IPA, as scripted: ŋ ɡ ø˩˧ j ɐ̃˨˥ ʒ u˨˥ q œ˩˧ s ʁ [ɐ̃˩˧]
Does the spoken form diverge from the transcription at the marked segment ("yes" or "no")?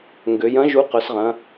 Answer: no